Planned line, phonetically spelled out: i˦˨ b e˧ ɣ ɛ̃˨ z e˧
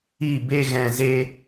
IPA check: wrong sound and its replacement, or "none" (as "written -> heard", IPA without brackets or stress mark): none